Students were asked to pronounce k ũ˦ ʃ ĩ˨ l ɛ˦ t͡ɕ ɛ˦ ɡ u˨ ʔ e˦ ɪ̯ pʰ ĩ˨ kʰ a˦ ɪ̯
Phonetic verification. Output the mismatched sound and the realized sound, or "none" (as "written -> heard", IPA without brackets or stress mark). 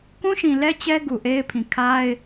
none